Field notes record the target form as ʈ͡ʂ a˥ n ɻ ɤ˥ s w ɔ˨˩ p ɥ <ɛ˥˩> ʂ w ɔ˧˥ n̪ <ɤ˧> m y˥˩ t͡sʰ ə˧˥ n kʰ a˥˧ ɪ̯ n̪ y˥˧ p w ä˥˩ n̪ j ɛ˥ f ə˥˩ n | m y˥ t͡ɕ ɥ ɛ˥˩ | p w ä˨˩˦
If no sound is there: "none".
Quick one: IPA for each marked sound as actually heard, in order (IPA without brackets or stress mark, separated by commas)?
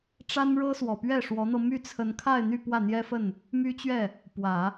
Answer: ɛ˥˩, ɤ˧